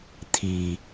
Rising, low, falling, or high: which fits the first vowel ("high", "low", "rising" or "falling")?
low